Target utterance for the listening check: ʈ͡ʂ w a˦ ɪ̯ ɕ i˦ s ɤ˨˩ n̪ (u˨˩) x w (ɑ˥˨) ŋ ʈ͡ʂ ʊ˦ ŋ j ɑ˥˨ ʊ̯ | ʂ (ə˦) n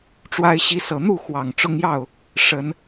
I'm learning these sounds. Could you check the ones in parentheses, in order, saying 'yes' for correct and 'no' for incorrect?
no, no, no

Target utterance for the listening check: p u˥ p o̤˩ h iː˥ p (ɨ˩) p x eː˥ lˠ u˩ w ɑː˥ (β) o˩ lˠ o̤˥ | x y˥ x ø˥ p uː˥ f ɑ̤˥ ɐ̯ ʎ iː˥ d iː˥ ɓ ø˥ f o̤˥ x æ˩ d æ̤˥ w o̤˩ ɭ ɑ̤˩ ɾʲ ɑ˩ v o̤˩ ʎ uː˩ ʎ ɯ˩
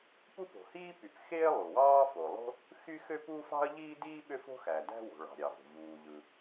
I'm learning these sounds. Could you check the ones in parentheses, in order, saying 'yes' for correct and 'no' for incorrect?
no, no

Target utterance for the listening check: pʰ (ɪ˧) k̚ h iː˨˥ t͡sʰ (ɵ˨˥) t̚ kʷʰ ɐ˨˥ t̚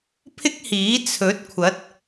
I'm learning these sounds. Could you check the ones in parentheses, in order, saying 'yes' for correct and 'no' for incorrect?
no, yes

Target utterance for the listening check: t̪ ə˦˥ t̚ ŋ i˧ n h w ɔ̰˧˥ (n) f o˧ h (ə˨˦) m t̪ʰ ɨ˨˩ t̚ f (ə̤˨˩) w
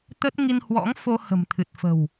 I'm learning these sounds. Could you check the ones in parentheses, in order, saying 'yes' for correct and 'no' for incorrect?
no, no, yes

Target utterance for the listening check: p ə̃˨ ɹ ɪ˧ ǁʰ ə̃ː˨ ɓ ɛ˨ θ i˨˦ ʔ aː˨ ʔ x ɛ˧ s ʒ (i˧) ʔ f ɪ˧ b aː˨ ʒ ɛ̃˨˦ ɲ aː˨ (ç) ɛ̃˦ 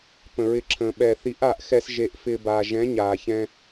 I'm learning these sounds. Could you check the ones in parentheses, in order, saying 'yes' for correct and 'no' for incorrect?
no, yes

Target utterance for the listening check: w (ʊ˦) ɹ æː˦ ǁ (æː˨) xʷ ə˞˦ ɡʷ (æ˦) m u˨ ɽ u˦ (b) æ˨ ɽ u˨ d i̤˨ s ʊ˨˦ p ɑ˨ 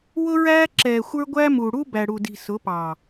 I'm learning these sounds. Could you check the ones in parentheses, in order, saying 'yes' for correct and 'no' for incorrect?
yes, no, yes, yes

